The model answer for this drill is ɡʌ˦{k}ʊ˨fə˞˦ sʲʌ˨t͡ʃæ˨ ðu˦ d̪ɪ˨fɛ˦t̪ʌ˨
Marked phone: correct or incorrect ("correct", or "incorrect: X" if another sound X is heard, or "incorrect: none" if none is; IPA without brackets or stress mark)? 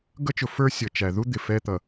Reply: incorrect: t͡ʃ